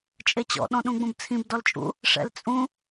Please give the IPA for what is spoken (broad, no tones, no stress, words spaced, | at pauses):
t͡ʃʼet͡ɕɔ̰ ɗɔ̃ɗũɡ͡bũbt͡sʰĩb dɔlt͡ʃʼṵ | ʂɛ̰lt͡sʼũ